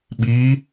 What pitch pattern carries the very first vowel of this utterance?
rising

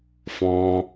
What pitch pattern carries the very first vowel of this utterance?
high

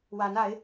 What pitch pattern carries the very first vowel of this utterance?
rising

